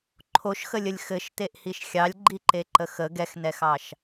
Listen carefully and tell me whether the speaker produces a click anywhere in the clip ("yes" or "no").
yes